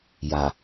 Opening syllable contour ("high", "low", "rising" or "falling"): low